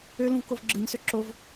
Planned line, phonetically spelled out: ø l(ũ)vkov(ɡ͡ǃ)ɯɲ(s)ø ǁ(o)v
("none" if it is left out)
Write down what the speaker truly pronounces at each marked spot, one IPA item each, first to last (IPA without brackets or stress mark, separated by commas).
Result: ũ, ɡ͡ǁ, s, o